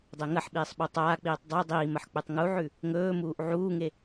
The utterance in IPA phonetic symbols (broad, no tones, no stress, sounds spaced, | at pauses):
dˤ e ŋ ɐ ħ ɓ iː sˤ ɓ u tˤ aː k͡p iː tˤ dˤ u dˤ iː m ɐ ħ k͡p ʉ tˤ ŋ u ʕ ʉ | ŋ ɵː m uː ʔ ʕ uː ŋ e